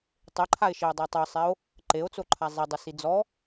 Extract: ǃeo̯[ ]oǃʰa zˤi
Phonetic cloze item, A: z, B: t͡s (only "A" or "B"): B